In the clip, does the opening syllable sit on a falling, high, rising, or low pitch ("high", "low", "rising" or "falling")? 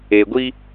low